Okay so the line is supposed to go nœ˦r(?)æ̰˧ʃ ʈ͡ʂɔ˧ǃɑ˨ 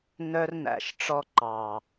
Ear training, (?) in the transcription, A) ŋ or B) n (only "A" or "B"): B